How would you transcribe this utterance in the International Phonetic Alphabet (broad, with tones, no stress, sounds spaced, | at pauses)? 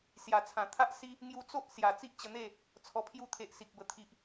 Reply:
s j a˨˩ t͡sʰ ã˨˩ t̪ʰ a˦ ʔ s i˦ | ŋ j u˧ t͡s o˦ ʔ s j a˨˩ t͡s i˦ ʔ t͡ɕ ə˧ n̪ e˥˧ | t͡sʰ ɔ˧ pʰ j u˦ t̪ʰ e˨ ʔ s i˨ k̚ b ə˨˩ t̪ʰ i˨ ʔ